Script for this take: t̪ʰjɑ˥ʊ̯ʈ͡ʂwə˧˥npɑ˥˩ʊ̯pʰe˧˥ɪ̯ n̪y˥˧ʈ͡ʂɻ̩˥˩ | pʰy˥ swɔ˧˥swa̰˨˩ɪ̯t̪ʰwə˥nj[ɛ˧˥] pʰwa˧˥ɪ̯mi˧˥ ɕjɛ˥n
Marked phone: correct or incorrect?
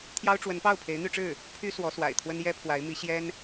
incorrect